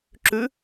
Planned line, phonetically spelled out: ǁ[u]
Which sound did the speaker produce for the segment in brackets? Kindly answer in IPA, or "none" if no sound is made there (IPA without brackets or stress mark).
ʉ